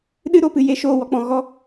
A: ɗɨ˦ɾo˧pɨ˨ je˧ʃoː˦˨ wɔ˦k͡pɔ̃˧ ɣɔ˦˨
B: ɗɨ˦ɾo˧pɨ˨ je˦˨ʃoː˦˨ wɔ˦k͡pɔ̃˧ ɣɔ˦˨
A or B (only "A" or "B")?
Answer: B